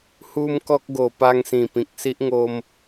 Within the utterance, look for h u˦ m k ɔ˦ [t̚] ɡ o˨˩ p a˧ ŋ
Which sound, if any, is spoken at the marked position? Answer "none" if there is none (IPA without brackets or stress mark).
k̚